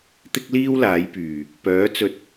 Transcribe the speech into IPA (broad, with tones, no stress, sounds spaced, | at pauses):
t̪ ɪ˥ k̚ l iː˥ w l aː˨˥ j p yː˨ | p œː˨˥ t͡s ɵ˧ t̚